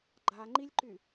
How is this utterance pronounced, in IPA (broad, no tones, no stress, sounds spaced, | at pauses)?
ɡ͡ǃ a ŋ͡ǃ i lʲ ǃ y